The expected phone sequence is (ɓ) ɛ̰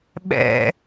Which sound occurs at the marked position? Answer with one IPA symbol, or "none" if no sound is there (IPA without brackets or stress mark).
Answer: ɓ